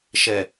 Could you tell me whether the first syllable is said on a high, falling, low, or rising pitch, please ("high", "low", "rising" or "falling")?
low